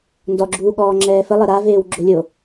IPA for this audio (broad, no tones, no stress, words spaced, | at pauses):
ndɔɡ͡ǁuː ɠɔːŋ͡ǁɛːfə lˠəɾaveːw ɡ͡ǁolʲo